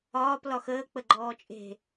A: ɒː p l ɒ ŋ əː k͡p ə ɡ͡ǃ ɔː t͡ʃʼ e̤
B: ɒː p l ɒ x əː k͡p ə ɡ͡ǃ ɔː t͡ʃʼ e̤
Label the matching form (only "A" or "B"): B